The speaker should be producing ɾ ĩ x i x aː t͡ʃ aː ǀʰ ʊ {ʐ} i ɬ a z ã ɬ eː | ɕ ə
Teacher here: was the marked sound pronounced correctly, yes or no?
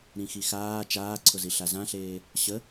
no